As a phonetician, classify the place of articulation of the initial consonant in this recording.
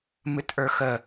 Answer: labial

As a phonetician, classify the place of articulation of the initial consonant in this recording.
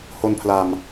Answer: glottal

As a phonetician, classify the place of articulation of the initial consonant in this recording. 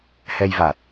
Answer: glottal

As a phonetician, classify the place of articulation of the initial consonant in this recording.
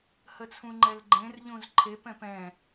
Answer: glottal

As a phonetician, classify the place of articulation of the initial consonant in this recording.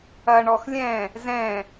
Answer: retroflex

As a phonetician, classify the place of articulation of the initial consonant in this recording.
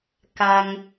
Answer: velar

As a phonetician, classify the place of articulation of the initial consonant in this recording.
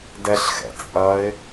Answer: alveolar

